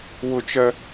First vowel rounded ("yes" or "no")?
yes